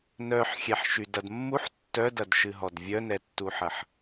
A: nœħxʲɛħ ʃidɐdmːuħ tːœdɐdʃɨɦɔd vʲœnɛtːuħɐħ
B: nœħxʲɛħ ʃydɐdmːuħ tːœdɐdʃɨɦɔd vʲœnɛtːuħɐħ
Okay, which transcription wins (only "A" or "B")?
B